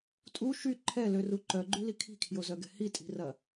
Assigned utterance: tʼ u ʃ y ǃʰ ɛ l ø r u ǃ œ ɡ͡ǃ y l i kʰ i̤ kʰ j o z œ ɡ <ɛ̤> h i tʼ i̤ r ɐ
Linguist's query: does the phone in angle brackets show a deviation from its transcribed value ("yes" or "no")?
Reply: no